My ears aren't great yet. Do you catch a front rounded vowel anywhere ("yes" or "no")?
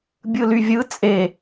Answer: yes